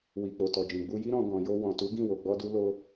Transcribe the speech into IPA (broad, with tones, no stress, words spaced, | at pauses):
wi˨k͡po˨tɔ˨ d͡ʒĩ˨ɡ͡bu˧ji˦ ɾɔ̃˧ɡɔ̃˨jo˧ wɔ̃˨tu˨˦ɡĩ˦˨ wo˨ɡ͡bɔ˧du˧ lo˧